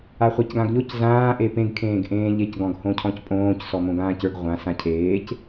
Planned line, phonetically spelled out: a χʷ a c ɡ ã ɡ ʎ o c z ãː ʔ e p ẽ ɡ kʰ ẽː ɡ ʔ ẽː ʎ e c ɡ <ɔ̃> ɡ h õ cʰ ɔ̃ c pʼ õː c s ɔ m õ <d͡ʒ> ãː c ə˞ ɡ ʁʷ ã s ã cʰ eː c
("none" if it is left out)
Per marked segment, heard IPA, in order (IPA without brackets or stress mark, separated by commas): ɔ̃, ɡ